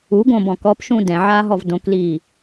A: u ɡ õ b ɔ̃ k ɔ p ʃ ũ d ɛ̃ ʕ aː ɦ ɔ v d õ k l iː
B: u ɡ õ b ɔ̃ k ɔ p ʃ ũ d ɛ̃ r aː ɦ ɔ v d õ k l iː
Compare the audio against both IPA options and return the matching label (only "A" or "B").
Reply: A